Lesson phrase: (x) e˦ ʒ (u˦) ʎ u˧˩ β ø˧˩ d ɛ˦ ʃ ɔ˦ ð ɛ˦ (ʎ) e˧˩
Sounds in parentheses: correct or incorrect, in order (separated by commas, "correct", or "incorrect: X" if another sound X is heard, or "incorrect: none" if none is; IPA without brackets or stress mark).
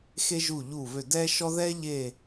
correct, incorrect: u˧˩, correct